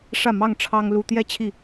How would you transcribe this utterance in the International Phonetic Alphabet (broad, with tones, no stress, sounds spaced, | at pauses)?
ʂ ä˥˨ m ɑ˥˨ ŋ ʈ͡ʂʰ ɑ˦ ŋ l u˦ t̪ j ɛ˥˨ t͡ɕʰ i˥˨